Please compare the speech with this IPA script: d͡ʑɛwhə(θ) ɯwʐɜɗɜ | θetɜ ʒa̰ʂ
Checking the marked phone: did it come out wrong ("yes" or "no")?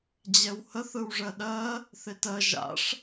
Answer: no